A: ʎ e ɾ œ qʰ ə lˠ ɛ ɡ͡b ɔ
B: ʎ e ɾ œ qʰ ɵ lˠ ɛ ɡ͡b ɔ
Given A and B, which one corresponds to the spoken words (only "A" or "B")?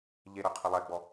A